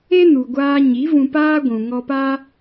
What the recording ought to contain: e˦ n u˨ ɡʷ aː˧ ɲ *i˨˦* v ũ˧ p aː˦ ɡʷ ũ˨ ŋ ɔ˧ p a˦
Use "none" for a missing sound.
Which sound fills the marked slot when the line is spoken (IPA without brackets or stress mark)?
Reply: i˨˦